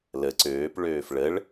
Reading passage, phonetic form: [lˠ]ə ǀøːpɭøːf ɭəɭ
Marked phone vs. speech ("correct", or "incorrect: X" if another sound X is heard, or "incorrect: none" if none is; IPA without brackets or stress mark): incorrect: l